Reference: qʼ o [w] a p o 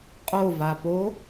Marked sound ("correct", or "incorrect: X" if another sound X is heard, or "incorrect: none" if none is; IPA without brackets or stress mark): incorrect: v